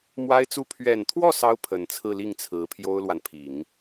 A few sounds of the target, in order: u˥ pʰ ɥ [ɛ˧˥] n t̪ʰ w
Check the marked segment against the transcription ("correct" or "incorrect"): incorrect